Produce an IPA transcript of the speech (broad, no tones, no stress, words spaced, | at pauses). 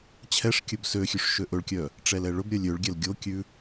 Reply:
t͡ɕʰɛʂkʲɵb søxʲʉʂ ʃøʔɵɭkʲœ | ʈ͡ʂɛlɛɭɵbɾʲœlʲ øɭɡʲɛl ɡʲokʲʉ